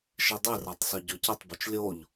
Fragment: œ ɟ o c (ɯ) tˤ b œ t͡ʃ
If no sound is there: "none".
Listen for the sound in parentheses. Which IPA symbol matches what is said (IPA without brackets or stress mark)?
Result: ə